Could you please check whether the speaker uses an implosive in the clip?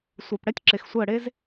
no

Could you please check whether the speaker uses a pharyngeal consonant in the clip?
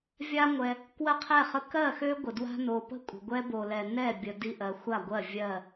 no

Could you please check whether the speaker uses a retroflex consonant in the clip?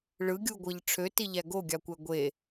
yes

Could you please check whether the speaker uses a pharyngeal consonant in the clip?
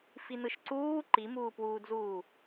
no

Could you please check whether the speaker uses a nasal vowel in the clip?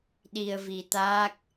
no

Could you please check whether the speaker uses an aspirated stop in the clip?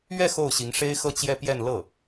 no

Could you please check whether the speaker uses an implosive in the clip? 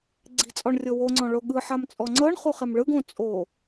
yes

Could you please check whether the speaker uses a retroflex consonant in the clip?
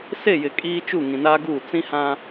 no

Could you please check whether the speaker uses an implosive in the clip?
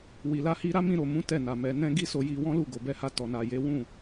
no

